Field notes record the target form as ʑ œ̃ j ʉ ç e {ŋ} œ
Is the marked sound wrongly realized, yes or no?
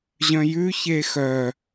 yes